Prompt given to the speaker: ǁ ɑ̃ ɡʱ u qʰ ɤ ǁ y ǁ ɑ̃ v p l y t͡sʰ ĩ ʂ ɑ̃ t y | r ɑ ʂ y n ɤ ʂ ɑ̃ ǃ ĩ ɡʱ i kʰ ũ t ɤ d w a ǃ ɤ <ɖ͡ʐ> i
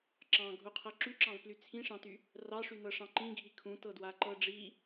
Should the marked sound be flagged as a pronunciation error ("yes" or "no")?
no